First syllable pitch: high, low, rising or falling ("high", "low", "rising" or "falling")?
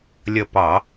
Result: falling